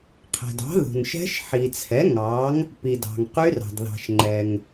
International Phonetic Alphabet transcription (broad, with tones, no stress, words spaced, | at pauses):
qʰɛ̤˨dɑ̤˨˥ðṳ˨n ʃɛ̤˦˥ʃ ħi˨t͡sʰɛ˨˥ ŋɑ˨˥ŋ | pi˨dɑ̤˨ŋqy˦˥rɑ̤˨d ðɑ̤˨ʃŋ͡ǃɛ˨ŋ